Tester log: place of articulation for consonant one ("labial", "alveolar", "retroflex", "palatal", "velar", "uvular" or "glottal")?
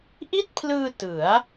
glottal